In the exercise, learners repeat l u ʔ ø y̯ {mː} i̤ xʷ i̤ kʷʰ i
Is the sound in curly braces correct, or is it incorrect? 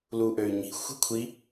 incorrect